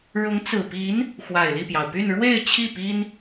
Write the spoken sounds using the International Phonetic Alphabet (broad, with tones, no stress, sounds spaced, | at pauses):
ɻ ʊ˧˥ ŋ t͡s ɹ̩˨˩ p i˧˥ n | x w a˨˩ ɪ̯ l i˥˩ p j ɑ˩ ʊ̯ p y˥˧ n ɻ w e˥˧ ɪ̯ t͡ɕʰ i˥˩ p i˥ n